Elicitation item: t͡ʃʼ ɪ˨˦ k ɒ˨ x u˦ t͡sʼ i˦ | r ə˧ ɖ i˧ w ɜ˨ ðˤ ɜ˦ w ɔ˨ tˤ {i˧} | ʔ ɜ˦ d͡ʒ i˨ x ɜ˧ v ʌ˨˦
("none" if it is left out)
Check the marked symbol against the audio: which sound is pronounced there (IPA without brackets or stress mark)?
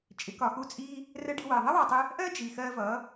ɪ˧